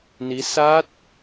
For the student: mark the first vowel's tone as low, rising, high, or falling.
rising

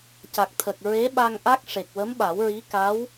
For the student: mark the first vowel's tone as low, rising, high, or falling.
low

